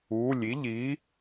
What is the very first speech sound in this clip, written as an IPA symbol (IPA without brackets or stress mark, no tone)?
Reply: uː